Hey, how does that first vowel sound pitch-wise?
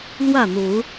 falling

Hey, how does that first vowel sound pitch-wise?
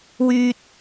high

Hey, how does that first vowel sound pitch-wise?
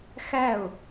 falling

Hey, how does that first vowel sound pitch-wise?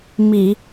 low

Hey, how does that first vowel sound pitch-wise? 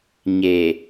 low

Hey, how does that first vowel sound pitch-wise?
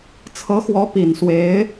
rising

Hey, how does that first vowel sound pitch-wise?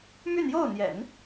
falling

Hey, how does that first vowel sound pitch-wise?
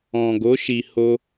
low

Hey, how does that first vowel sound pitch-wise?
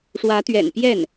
rising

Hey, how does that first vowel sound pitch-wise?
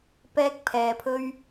high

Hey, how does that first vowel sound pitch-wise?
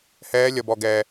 high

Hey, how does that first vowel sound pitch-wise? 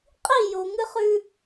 falling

